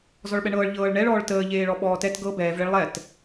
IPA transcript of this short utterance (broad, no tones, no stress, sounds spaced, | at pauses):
z ɔ ɭ ɓ ɛ ɳ ɤː ɭ ʎ ɤː ɭ ɳ ɛ ɭ ɔː ɭ t əː ʎ eː ɭ ɔ ɓ ɔː t ɛ t ɡ ɤ b ɛː v ɭ e ɭ lˠ ɛ t